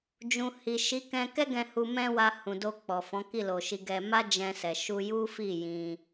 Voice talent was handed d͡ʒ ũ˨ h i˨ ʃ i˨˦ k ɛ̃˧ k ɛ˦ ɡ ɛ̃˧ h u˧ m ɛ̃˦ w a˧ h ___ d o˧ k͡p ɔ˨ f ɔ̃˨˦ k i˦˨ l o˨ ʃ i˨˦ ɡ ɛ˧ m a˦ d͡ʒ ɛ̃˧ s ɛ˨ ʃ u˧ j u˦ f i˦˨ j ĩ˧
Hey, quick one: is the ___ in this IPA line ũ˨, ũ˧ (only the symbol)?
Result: ũ˨